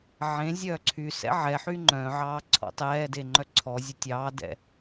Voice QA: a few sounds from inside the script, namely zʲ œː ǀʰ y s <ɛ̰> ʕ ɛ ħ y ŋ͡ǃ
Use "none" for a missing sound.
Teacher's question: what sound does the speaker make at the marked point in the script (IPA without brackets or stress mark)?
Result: ɛ̰